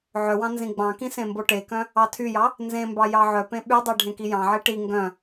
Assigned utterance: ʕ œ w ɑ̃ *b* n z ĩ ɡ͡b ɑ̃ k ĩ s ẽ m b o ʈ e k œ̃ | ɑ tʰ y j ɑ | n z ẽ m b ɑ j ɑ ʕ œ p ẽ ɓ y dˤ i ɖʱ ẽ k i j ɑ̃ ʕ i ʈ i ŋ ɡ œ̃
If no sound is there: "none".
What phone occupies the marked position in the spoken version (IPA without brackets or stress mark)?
none